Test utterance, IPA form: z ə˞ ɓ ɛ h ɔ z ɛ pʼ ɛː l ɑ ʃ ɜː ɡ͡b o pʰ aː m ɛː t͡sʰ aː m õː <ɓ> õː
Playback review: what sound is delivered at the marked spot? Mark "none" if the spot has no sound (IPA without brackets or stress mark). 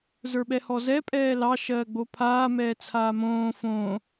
f